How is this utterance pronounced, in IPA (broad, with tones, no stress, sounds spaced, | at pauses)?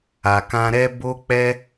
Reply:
a˨ k ã˧ ɾ ɛ˦ b o˦ k͡p ɛ˦